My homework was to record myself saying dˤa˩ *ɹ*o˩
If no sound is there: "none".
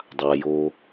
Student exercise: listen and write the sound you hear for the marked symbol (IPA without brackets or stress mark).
j